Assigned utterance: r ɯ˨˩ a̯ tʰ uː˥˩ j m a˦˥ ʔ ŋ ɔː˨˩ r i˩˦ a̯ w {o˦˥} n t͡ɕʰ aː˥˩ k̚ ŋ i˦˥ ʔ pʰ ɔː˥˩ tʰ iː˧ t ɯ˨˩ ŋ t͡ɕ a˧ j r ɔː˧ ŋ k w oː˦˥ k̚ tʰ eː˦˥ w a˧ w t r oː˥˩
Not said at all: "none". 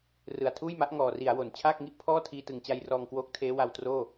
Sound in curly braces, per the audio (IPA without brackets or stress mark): o˩˦